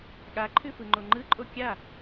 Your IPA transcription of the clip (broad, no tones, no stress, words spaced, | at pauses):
ɠaǃʰʉ fɯŋ͡ǃoŋ͡ǃɯǃʼo kʲa